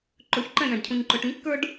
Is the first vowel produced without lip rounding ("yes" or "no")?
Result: no